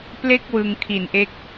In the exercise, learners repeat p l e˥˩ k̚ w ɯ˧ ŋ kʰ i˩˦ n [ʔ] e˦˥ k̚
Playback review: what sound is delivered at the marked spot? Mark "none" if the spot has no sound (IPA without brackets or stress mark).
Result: ʔ